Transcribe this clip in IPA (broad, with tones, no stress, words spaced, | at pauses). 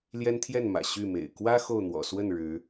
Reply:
ljɛ˦nt̪ʰjɛ˥˨nmä̰˨˩ ɕy˥˨mḛ˨˩ɪ̯ kwä˦ xo˥˨ʊ̯n̪wɔ̰˨˩ swə˥˨n ɻɻ̩˨˦